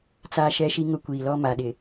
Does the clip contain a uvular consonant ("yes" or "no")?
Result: no